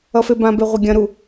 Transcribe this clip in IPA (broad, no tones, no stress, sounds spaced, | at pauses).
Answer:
ʌ f e b ã b e ʁʷ ɐ ɡʲ ɐ̃ ɾ u